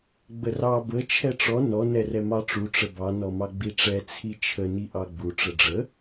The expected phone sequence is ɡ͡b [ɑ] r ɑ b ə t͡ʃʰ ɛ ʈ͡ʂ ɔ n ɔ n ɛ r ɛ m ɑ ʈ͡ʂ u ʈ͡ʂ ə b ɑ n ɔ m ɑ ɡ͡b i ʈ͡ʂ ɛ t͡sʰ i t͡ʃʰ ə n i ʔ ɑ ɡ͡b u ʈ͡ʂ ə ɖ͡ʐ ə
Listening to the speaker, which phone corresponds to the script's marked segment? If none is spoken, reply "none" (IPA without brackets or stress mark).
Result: ə